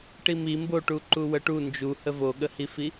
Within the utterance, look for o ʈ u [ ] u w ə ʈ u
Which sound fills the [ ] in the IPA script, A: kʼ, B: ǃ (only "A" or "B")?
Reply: B